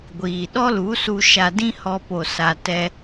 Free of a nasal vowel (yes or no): no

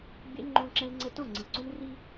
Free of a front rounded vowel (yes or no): yes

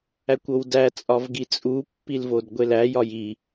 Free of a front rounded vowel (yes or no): yes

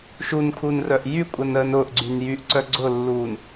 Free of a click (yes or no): no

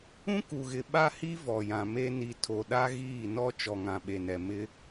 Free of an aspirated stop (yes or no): no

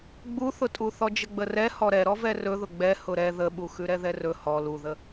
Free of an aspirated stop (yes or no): yes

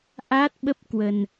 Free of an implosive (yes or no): no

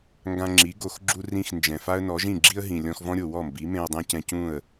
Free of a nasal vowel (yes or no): no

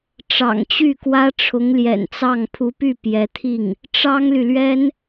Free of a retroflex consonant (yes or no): no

